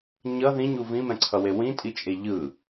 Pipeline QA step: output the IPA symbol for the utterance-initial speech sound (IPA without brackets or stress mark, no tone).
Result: ɲ